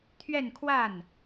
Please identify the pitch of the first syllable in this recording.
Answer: falling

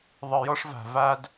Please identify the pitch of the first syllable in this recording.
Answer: low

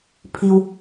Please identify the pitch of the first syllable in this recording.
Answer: low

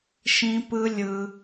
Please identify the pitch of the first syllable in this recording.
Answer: high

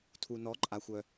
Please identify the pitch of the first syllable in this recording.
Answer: low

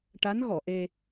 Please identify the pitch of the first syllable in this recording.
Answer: rising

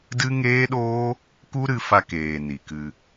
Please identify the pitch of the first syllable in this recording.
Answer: high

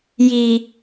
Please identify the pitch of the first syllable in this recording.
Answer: low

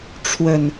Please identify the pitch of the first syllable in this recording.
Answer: low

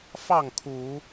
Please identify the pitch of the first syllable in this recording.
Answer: falling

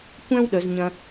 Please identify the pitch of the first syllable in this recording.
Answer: high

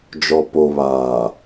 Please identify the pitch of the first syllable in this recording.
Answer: low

